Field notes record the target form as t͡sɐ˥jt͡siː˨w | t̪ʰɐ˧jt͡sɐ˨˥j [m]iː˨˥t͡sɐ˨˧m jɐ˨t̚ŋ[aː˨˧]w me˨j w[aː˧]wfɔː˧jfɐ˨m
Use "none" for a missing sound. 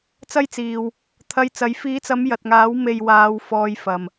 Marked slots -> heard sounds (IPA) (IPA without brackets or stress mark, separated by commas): f, aː˨˥, aː˧